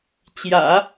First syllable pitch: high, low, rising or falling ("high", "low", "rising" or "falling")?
low